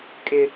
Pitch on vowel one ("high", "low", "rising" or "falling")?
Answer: high